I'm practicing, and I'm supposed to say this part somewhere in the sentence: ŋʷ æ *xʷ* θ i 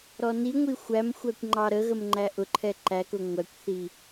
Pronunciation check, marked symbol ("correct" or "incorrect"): incorrect